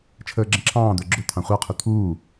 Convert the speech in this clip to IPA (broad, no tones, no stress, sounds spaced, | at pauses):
t͡ʃʰ əː ɡ͡ǁ ə̃ ǁʰ ɑ̃ː d̪ ə˞ ɡ͡ǁ ʊ t̪ʰ ɑ̃ χʷ ɑ qʰ u t̪ʰ uː